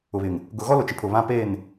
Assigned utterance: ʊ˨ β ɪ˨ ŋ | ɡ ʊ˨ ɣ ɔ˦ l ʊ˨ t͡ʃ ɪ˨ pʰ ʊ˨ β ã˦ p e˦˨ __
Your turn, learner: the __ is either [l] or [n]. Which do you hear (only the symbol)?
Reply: n